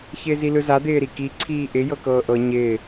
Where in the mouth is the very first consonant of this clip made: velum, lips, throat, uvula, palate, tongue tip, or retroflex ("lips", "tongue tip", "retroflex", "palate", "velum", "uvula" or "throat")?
palate